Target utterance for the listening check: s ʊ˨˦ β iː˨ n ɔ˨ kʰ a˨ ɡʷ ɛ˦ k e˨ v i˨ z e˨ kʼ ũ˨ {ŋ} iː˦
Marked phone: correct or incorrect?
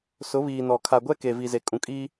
incorrect